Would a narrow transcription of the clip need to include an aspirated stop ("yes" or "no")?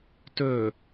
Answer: no